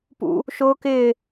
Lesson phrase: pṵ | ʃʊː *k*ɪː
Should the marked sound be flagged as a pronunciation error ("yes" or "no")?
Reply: no